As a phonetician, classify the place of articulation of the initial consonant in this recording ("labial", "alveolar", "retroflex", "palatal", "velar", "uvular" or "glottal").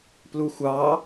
labial